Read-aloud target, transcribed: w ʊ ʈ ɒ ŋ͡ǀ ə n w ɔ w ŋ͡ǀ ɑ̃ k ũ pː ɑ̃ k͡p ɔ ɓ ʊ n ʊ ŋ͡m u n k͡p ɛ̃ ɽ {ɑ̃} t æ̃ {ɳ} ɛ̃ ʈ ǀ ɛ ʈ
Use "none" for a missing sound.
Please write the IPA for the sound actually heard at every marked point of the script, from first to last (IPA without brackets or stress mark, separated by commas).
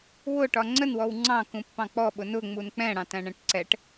ɑ̃, ɳ